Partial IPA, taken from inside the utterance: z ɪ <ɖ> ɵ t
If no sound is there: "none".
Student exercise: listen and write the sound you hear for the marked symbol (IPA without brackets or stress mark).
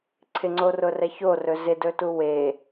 d